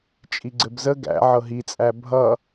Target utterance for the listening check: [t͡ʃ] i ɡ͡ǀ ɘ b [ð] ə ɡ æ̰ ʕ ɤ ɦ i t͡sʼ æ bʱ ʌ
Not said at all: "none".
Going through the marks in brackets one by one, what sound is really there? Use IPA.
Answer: t͡ʃʼ, z

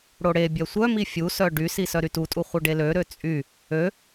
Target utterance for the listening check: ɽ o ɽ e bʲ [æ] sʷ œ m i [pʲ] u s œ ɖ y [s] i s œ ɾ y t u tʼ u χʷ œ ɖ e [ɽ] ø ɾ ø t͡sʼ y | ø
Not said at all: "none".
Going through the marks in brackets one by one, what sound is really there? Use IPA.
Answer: œ, fʲ, s, l

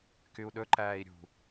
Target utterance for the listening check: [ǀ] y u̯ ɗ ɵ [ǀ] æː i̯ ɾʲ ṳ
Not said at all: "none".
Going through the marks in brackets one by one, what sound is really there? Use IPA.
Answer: k, ǃ

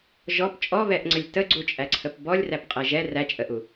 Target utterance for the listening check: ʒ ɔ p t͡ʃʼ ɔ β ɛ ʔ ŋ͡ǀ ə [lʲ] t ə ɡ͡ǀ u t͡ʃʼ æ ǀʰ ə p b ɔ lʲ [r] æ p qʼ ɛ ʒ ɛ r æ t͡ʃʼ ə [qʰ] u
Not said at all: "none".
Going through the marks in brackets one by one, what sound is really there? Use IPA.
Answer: lʲ, r, ʔ

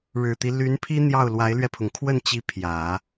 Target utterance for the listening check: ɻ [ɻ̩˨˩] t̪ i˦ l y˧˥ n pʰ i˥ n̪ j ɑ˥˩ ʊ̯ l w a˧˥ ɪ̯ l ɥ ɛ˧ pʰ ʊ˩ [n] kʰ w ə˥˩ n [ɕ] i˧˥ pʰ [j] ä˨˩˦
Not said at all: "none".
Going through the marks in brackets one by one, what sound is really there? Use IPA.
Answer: ɻ̩˨˩, ŋ, t͡ɕ, j

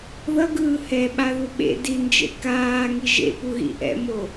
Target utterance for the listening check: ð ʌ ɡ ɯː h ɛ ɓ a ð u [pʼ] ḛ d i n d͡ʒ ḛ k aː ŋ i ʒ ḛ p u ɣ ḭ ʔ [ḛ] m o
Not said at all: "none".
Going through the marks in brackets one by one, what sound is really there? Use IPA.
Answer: ɓ, ɛ̰

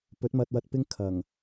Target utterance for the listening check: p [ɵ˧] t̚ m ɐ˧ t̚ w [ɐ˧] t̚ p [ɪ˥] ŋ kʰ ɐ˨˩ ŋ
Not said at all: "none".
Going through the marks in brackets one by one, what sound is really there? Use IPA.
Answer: ɵ˨˥, ɐ˧, ɪ˥

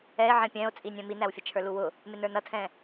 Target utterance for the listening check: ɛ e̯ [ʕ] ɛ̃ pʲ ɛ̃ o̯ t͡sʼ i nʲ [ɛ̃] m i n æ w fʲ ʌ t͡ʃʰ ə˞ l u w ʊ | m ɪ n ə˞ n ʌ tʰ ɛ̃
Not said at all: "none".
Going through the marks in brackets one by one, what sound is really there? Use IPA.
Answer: ʕ, ɛ̃

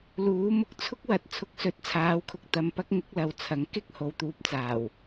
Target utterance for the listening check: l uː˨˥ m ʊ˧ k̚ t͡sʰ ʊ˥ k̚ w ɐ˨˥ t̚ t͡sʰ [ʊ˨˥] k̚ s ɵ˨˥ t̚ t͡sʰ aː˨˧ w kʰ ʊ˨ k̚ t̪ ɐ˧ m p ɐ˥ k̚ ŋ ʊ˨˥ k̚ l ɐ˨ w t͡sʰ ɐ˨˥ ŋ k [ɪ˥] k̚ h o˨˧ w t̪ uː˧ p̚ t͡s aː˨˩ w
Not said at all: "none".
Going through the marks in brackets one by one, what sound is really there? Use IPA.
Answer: ʊ˨˥, ɪ˥

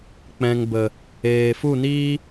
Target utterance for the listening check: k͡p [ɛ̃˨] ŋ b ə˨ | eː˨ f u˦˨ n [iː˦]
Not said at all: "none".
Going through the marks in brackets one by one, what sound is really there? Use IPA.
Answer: ɛ̃˨, iː˦

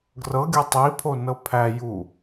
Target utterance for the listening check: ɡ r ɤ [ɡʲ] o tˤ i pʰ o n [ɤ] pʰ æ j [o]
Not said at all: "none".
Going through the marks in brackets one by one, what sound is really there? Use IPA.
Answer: ɡʲ, ɤ, u

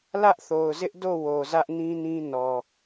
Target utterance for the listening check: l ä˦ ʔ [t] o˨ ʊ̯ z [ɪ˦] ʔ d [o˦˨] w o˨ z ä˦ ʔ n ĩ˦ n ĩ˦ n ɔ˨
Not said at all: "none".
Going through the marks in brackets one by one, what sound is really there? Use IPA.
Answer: θ, ɪ˦, o˦˨

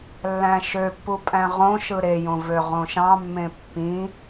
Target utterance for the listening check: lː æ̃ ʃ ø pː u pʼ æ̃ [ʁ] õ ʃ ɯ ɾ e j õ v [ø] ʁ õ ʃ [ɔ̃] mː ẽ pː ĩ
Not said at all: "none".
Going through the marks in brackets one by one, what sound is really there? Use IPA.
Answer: ʁ, ø, ɑ̃

